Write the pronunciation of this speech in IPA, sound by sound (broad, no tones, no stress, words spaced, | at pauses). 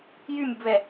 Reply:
jymʲubβɛ